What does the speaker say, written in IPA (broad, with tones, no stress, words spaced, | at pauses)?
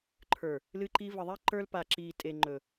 ǃʰə˞˨ | lɨ˦ǃi˦ və˨ðˤe˦ ǃə˞˦l pa˨ǁiː˨tʼe˨ ŋ͡ǃɵ˨